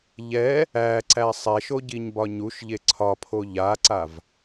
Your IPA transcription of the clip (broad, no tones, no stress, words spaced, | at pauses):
ʎɛ | æǀæ sˤɛʃoɟiɲbɒ ɲuʃʎe ǀʰɒpʰo ʎaǀav